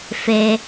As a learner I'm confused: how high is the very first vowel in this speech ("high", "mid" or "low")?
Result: mid